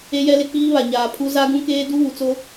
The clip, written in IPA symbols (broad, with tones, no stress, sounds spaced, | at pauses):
e˦ j ɛ˦ l ɪ˦ k͡p iː˦ β a˨ ɲ aː˨ pʰ u˦ z a˦ ɡ ũ˦ k eː˦ d u˦ β u˨ t͡s o˦